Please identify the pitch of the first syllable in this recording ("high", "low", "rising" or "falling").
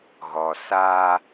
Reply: low